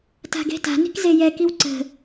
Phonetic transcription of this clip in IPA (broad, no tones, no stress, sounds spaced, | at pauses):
t a̤ ɡ e̤ t a̤ n i̤ k z e j ɛ k i w ǀ ə̤